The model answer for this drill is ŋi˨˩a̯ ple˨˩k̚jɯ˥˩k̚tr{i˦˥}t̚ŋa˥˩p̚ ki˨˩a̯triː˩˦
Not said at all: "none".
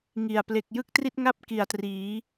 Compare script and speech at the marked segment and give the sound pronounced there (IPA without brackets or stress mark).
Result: i˥˩